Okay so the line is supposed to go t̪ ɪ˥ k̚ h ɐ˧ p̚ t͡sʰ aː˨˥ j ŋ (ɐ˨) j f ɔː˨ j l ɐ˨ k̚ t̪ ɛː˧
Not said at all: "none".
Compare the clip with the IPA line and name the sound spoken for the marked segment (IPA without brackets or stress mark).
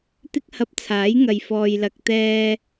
ɐ˨